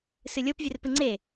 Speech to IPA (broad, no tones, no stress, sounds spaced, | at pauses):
s ɨ lʲ o p vʲ ɵ r p ɨ ŋ͡ǀ e